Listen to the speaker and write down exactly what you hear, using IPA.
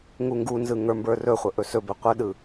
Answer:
ŋ u ŋ ɡ u n z ɯ ŋ ə˞ m b ə˞ r ɵ χʷ ə ʔ ɵ s ɵ b ɵ qʷ ə ɗ ɯ

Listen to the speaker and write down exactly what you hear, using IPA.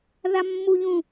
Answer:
ð a mː u ʎ ũ

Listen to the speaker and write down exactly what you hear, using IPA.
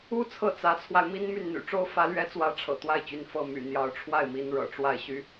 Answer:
u˥ t͡sʰ ɤ˥˩ t͡s ä˧˥ t͡sʰ w a˧ ɪ̯ m i˥ n m y˥˩ n n̪ y̰˨˩ ʈ͡ʂ o˥ ʊ̯ f ä˧˥ l ɥ ɛ˧˥ t͡s w ä˧˥ ʈ͡ʂʰ ɤ̰˨˩ t̪ w a˥˩ ɪ̯ t͡ɕ y˧˥ n f ɤ˥˩ m y̰˨˩ n̪ j ɑ˧˥ ʊ̯ ʈ͡ʂʰ w a˥˩ ɪ̯ m i˧˥ n ɻ ɤ̰˨˩ ʈ͡ʂ w a˥˩ ɪ̯ ɕ y˥

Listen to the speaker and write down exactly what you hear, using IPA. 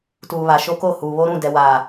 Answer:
t uː˨ β a˨ ʃ o˦ k o˦˨ h uː˨ β o˦ ɾ ũ˦˨ d ɛ˨ w aː˨

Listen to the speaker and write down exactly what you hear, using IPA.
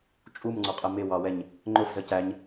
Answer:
t͡ʃʼ u m ŋ͡ǀ ɒ qʼ ə m ɪ w ɑ w ɛ ɲ | ŋ͡ǃ ʊ f z ə c æ ɲ

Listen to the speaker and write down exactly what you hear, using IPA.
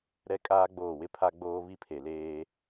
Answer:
ɾ ɛ˦ kʼ aː˦ ɡ͡b oː˦˨ w ɪ˦ pʰ a˦ ɡ͡b oː˦ β i˦ pʰ e˨ l eː˦

